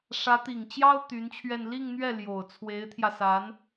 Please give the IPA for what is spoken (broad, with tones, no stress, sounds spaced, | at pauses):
ʂ ä˧˥ t̪ i˨˩ ŋ t͡ɕ j ɑ˥ ʊ̯ t̪ y˧˥ n t͡ɕʰ ɥ ɛ˥˧ n l i˥˧ ŋ n̪ ɥ ɛ˥˩ l j o˨˩ ʊ̯ t͡sʰ w e˧˥ ɪ̯ t̪ʰ j ä˧ s a˧˥ n